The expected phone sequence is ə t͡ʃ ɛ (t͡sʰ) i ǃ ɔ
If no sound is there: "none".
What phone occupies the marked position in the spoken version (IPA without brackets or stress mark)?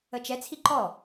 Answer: t͡sʰ